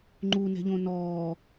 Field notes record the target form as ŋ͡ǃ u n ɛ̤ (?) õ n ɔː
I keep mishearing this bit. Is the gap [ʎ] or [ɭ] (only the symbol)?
ʎ